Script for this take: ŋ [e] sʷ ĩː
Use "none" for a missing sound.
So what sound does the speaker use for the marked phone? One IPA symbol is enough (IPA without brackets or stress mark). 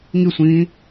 i